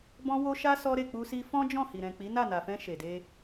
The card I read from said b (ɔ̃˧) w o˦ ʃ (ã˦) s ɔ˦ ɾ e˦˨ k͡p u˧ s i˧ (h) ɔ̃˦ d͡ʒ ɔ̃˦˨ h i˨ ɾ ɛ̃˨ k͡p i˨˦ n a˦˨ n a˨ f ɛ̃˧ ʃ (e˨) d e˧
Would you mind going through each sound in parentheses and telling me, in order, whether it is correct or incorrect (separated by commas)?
incorrect, incorrect, incorrect, correct